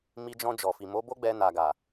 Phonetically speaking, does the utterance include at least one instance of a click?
no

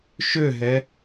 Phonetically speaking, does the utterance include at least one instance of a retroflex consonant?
no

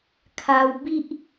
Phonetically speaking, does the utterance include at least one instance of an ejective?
no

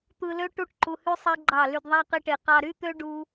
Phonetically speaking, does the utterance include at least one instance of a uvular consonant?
yes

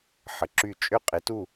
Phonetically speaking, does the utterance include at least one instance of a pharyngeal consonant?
yes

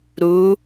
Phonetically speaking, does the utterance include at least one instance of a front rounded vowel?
no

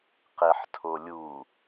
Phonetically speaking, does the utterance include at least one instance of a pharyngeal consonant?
yes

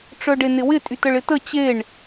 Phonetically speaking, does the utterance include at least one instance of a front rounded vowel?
yes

